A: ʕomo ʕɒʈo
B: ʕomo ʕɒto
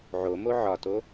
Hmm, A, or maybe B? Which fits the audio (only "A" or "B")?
B